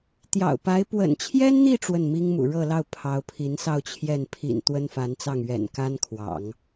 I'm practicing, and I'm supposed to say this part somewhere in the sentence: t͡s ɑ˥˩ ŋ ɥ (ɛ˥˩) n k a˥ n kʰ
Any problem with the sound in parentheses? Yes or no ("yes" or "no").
yes